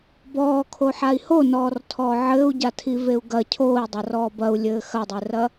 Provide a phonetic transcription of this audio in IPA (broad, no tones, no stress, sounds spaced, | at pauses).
b ɔː kʰ o ħ a i̯ h o n ɔː r tʰ ɔː ʕ ɘː u̯ ɟ a tʰ i v e u̯ ɡ ɐ cʰ oː i̯ dˤ ɐ r ɔː b ɐ u̯ lʲ ɘː x ɐ dˤ e r ɐ